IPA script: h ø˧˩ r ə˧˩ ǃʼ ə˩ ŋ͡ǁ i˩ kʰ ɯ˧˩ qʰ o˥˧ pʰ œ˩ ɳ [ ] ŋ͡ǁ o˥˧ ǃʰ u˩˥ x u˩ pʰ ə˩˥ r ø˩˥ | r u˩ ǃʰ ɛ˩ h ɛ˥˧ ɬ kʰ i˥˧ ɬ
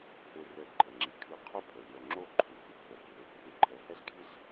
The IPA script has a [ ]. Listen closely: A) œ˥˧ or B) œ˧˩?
B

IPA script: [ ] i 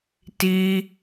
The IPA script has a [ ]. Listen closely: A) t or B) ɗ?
A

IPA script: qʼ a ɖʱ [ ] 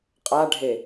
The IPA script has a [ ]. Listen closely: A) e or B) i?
A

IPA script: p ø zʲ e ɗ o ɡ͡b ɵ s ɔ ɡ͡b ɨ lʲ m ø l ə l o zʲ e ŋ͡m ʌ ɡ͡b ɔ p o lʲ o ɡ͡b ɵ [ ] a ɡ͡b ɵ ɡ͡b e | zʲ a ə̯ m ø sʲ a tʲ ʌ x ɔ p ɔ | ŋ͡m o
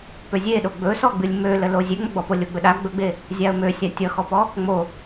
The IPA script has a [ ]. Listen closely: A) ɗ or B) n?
A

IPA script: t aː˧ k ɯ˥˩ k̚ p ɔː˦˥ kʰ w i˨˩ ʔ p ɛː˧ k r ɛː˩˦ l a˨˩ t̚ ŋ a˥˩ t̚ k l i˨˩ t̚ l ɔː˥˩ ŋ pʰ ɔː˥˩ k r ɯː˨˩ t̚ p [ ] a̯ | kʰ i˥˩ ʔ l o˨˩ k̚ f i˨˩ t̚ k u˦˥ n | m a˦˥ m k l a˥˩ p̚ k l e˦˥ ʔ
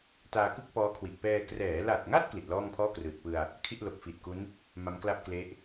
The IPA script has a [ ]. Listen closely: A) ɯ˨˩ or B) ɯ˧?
B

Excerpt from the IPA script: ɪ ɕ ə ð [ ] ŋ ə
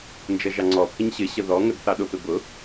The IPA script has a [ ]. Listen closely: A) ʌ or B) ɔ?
B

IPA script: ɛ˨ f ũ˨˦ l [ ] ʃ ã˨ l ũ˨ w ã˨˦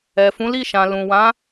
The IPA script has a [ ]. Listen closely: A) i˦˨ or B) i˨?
A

